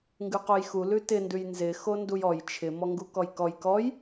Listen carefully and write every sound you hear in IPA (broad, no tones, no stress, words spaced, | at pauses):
ŋɡʉqojxu lʉtɪndʉj nzɪ xondujɔj t͡ʃʰɪ mɔŋɡukɔjkɔj kɔj